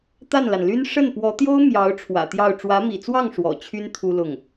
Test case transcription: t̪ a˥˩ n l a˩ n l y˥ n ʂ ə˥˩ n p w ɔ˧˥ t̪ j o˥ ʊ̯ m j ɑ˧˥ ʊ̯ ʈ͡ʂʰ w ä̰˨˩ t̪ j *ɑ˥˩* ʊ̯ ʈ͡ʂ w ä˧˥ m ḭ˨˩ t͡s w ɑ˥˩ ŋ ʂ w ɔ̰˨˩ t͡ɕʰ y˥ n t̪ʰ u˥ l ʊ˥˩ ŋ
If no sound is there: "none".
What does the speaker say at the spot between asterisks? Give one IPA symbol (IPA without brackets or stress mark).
ɑ˥˩